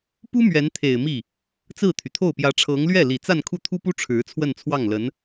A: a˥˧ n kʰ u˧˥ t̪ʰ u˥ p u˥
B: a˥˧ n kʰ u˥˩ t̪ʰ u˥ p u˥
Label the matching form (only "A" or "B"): B